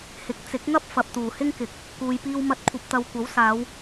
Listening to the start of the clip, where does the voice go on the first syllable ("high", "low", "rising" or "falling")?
rising